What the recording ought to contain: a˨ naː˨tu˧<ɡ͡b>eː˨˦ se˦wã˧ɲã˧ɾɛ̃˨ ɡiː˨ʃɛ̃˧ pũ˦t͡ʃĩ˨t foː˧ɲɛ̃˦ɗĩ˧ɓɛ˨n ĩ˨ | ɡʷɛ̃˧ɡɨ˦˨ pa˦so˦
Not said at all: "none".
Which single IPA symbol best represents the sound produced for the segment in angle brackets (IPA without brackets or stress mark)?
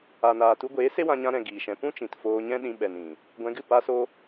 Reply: ɡʷ